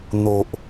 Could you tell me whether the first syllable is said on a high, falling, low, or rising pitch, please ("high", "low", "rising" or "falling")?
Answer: low